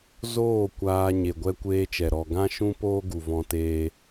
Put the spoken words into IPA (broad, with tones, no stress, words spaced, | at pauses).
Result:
zoː˦˨kʷaː˧ ɲe˨ɡʷɛ˦kʷeː˦t͡ʃɛ˨ ɾɔ˨ɡã˦ʃũ˦ poː˦ɡu˨ vɔ̃˦teː˦